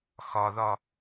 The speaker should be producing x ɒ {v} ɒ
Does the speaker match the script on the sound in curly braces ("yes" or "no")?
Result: no